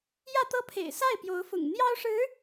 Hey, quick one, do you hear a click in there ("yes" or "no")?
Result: no